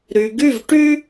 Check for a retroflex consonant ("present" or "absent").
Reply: present